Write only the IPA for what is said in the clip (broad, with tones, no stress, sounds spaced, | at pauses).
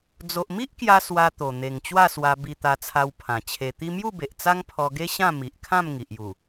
d͡z o˨ ʔ m i˦ ʔ k j a˧ s w a˧ t̪ o˨˩ n̪ e˨˩ ŋ t͡ɕ w a˥˧ s w a˧ b i˧ t̪ a˧ t͡sʰ a˧ w pʰ ã˨˩ t͡ɕʰ e˧ t̪ i˦ m j u˥˧ b e˨ ʔ t͡s a˦ ŋ pʰ ɔ˧ ɡ e˦ ɕ ã˥˧ m i˨ ʔ kʰ ã˥˧ m ŋ i˨ ʔ j u˨˩